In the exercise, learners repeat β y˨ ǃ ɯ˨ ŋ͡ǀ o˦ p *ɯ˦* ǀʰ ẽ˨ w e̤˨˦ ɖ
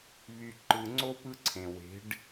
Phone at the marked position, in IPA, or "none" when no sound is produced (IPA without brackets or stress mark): ɯ˦